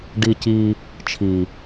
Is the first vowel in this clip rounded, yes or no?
no